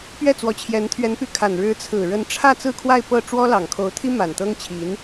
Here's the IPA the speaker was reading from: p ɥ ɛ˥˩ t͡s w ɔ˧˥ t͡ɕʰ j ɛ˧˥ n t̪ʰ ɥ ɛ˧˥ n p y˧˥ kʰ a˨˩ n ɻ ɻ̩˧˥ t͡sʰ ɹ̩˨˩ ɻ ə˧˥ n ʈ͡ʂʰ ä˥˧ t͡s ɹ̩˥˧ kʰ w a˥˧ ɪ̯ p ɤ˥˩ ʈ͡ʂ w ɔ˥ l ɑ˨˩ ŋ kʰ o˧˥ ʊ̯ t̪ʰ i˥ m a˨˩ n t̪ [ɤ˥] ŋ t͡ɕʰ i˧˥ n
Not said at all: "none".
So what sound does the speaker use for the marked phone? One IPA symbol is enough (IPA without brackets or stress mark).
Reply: ɤ˥